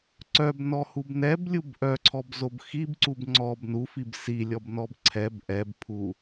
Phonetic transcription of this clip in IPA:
ǀœbnɔhub nɛblʲub ʔœǀʰɔbzob xibǀub ŋ͡ǀɔb nufib silʲɔbnɔb ǀʰɛb ʔɛbpʰu

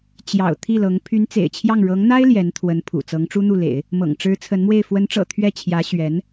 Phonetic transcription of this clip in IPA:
t͡ɕjɑ̰˨˩ʊ̯ t̪ʰi˥˩lɤ˧˥ŋ pʰy˧˥nt͡sḛ˨˩ɪ̯t͡ɕʰjɑ˥˩ŋ ɻɤ˧˥ŋn̪a˥ɪ̯ ljɛ˧˥nt̪ʰwə˧˥n pʰṵ˨˩ t͡sɤ˧˥ŋʈ͡ʂu˥n̪u˥˩lḛ˨˩˦ɪ̯ | mɤ̰˨˩ŋʈ͡ʂɻ̩˧˥ t͡sʰə˧˥nmwe˥˩ɪ̯ fwə˧˥nʈ͡ʂɤ̰˨˩ t̪ʰɥɛ˥˩t͡ɕʰjä˧˥ ɕɥɛ˧˥n

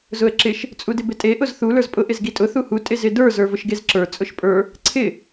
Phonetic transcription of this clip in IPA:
zʊə̯ǁɪʃ | t͡sʼudɪbɪtʼe ʔʊzθu lə˞zpʼʊ ʔɪzɡitʼʊ θuhu tʼɪzɪdə˞ zə˞vʊʃɡezǁə˞ t͡sʼʊʃpʼə˞ | ǀʰɪ

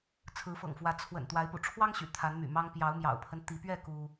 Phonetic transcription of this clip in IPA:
t͡sʰɹ̩˨˦fɤ̰˨˩ŋfwä˨˦ t͡sʰwə̰˨˩n t̪wa˨˦ɪ̯pṵ˨˩ʈ͡ʂʰwɑ˦ŋ ɕy̰˨˩t̪ʰa˨˦nmy̰˨˩mɑ˦ŋ pjɑ˨˦ʊ̯mjɑ̰˨˩ʊ̯pʰə˦nt̪i˨˦ pɥɛ˥˨ ku˦

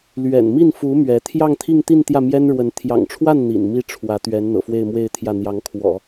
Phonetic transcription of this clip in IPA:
lɥɛ̰˨˩n mi˥˩nfu˧˥ mɥɛ˧˥ t̪ʰjɑ˥˧ŋt̪ʰi˥˧ŋt̪i˥˧n t̪jä˥˩mjɛ˥nɻwə˧˥n t̪ʰjɑ̰˨˩ŋʈ͡ʂʰwa˥˩n n̪ḭ˨˩nmi˥˩ ʈ͡ʂʰwä˧˥t̪ɥɛ˧˥n n̪ɤ̰˨˩fwe˥˧ɪ̯mwe˥˧ɪ̯t̪ʰjä˥˩ n̪jɑ˧˥ŋkʰwɔ̰˨˩˦

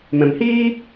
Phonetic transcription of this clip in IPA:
mɛ̃˨mhiː˦

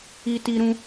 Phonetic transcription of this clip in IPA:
i˧ ti˧ɾũ˧

